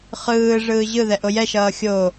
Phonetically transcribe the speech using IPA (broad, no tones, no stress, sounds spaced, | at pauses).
χ ɯː ʐ ɯː ʑ ɯ ð ɛ ʔ o j ɛ ʃ ʌː xʲ o